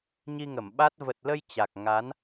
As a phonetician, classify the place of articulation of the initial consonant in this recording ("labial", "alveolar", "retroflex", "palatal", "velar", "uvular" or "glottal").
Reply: palatal